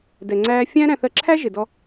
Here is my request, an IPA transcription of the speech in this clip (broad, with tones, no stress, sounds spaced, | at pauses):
d ɛ˨ ŋ͡ǀ æː˦ fʲ æ̃˦ ɾ æ̃˨ θ ɜ˨ ǁʰ æ˦ ʒ ɪ˨ d ɔ˦